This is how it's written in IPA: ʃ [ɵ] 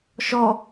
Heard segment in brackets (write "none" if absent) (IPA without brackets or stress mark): ɔ